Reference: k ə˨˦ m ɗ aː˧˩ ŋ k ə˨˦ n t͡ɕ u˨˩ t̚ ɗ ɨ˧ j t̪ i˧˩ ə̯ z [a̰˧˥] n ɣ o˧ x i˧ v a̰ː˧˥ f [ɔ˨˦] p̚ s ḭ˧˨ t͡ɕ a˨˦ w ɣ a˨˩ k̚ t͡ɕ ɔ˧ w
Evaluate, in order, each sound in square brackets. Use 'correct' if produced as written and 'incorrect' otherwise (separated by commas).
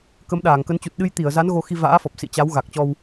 incorrect, incorrect